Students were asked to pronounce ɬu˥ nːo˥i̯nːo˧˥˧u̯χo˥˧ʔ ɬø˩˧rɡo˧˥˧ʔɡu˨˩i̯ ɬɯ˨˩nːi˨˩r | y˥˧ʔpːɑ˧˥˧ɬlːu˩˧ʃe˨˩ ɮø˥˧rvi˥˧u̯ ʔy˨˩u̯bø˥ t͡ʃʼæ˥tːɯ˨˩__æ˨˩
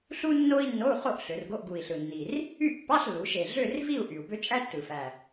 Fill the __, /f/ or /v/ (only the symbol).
f